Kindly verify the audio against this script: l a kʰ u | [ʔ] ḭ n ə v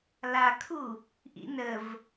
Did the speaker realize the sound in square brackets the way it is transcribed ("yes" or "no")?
yes